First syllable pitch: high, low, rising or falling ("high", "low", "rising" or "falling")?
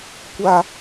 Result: high